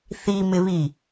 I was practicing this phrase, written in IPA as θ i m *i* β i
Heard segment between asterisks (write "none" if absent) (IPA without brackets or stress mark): ɪ